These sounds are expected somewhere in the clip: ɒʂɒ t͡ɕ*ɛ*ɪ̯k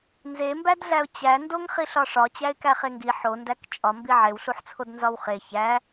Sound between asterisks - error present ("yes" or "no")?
yes